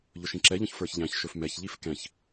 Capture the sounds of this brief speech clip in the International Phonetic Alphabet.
ʎ ɵ ʃ ĩ ǁ ɛ ʎ ɔ̃ ç f ə˞ ç ʎ æ̃ ç ʃ ɵ f m ɛ ç ʎ i f k ɛ̃ ç

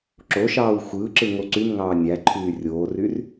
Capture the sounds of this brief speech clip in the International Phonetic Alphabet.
ǁ o ʃ ɑː w xʷ ɯː ǁ ɯ ŋ o ǀ y m ŋ ɑː nʲ æ ǃʰ yː rʲ oː r y r

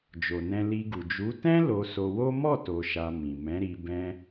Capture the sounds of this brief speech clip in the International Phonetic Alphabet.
d͡ʒ o˨ n ɛ̃˧ l i˧ ɡ u˨ d͡ʒ u˨˦ t ɛ̃˦ l o˧ s o˧ w o˦ m ɔ˦˨ t o˨ ʃ a˨ m ĩ˨ m ɛ̃˨˦ ɾ i˧ b ɛ̃˧

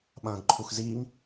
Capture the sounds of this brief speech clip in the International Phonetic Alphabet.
ɓ ɐ̃ː ɡ ǃʰ u x z iː ŋ

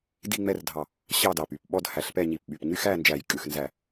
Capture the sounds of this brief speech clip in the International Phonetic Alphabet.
d i˥˨ ŋ͡m ɛ˥˨ r dʱ ɑ˧˩ | ɕ ɑ˥˨ d ɑ˧˩ p y˧˩ p ɓ ɔ˥˨ d h æ˧˩ ɬ p ɛ˥˨ ɲ i˧˩ p ɓ y˧˩ p ɲ y˥˨ x æ˥˨ n d͡ʒ æ˧˩ j kʼ ʉ˥˨ x n z æ˥˨

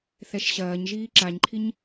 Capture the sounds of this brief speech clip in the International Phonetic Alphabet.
θ ɛ ʃ ɕ ɐː ɲ ʒ iː ǁ a ɲ ǃʰ i ɲ

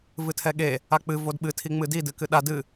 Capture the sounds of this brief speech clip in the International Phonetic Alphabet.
v ɨ tʰ ɛ ɠ e | a k͡p ɨ v o d ɓ ɨ tʰ i ŋ͡m ɨ d i d ɨ k ɨ ɗ a d ɨ

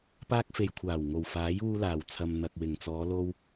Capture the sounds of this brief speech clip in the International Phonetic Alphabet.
p aː˧ k̚ f e˨ j kʷʰ aː˨˩ w ŋ o˨˩ w f aː˨˥ j uː˧ l aː˨˩ w t͡sʰ ɐ˨ m n̪ ɐ˨ k̚ w ɪ˨˩ ŋ t͡s ɔː˨˧ l o˧ w

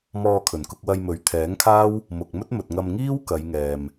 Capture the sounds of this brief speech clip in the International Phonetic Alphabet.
m ɔː˧ kʰ ɵ˨˩ n k ʊ˧ k̚ w ɐ˧ j m ɵ˨˥ ɥ t̪ʰ ɛː˨˥ ŋ kʰ aː˥ w | m ʊ˨ k̚ m ɵ˥ t̚ m ɵ˨ t̚ ŋ ɐ˧ m ŋ iː˥ w k ɐ˨˧ j ŋ ɛː˨ m

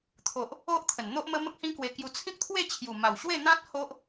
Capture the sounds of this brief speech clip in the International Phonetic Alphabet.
t̪ʰ o˨ ʔ | o˦ ʔ t̪ʰ ə˨˩ n n̪ o˦ ʔ m ə˦ m ə˦ k̚ h ĩ˦ k w e˧ k j u˧ t͡sʰ ĩ˦ k̚ t̪ʰ w e˥˧ t͡ɕʰ j u˨˩ m a˨˩ w ɕ w e˥˧ n̪ ã˦ t̚ h o˦ ʔ

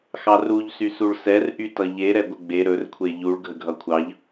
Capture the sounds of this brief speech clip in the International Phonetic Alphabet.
x ɑ r u ʎ s y s u ɭ s ɛ r ʔ y t ʌ ʎ e ɾ ɛ ɡʷ ə ɡ͡b e ɾ ɵ r kʷʰ e ʎ u ɭ ɡʱ ə ɡʱ ʌ kʷʰ ɑ ʎ

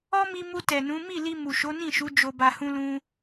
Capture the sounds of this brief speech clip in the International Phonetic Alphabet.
ɔ˦ m i˧ m u˧ t ɛ˨ n ũ˨˦ m i˦˨ l i˧ m u˨ ʃ o˨˦ n ĩ˦˨ ʃ u˨˦ d͡ʒ o˧ b a˧ h ũ˦ l ũ˦

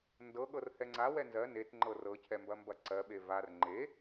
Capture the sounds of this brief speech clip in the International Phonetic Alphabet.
n d ɤ ɠ ɤ r h ɛ ŋ͡ǀ a w ɛ n z ɜ n e t ŋ͡ǃ ɤ r ɤ cʰ ɛ m b ɐ m b ɐ ǀ ɜ ɓ e v a r ŋ͡ǃ e

